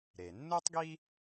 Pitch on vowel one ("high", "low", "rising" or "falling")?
low